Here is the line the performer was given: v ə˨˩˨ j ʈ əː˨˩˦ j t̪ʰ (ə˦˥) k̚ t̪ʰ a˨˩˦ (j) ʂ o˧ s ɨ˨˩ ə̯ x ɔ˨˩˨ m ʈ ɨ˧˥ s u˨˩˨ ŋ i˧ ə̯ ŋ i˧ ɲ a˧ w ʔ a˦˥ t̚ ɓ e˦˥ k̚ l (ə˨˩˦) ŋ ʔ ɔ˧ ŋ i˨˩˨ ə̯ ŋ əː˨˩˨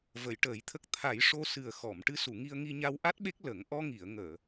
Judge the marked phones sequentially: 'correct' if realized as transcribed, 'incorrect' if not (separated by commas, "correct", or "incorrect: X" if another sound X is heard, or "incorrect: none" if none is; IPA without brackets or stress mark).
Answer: correct, correct, correct